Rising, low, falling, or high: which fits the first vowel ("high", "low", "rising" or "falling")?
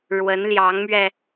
rising